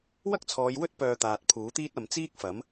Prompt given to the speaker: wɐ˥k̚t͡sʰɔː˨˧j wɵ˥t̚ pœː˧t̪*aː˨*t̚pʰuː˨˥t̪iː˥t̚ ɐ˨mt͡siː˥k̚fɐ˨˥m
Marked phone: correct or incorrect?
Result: correct